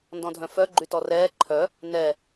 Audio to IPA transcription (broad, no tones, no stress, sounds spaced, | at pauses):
n d ɔ̃ dʱ œ̃ f œ ɡ͡ǃ y t ɔ r ɛː ǃʰ œ | n ɛ